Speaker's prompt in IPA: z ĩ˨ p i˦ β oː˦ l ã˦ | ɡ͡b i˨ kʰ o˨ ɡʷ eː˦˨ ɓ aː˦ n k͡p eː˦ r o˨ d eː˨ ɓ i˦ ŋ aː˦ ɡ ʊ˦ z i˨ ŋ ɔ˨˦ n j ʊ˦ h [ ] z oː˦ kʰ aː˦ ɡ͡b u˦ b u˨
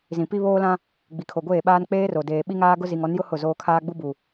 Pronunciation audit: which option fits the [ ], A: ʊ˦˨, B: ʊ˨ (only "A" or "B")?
A